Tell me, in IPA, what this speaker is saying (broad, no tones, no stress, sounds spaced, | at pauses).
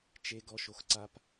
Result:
t͡ʃ e ɡ ɔ ʃ o x ǀ a p